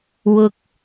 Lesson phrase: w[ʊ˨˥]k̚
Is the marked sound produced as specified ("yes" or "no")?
no